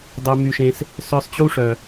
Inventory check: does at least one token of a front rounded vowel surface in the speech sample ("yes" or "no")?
yes